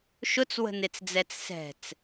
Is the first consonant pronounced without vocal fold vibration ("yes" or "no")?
yes